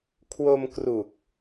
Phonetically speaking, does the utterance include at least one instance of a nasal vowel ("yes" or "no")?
no